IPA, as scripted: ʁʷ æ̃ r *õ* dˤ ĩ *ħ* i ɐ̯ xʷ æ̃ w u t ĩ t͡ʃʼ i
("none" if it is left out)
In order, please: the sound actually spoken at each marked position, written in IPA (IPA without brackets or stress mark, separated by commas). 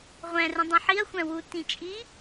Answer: ũ, ħ